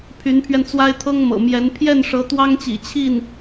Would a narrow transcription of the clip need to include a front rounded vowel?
yes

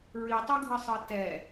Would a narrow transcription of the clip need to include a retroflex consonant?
no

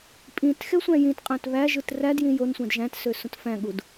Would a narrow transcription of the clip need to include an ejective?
yes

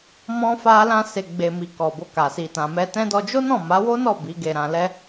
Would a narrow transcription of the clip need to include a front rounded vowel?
no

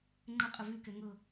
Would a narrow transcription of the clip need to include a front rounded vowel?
yes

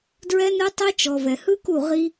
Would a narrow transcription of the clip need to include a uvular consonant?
yes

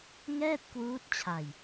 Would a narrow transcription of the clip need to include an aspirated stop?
yes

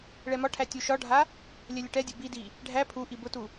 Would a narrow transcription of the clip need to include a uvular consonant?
no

